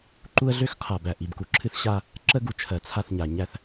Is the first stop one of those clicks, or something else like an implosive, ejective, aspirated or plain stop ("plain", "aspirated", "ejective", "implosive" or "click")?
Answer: click